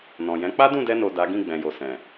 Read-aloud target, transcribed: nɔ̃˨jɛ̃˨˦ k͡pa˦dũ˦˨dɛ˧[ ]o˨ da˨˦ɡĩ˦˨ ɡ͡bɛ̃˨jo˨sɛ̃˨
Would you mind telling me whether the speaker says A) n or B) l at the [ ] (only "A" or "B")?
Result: A